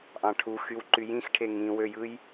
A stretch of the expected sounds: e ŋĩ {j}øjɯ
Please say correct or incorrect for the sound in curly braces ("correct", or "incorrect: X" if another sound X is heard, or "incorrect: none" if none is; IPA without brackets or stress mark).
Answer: incorrect: w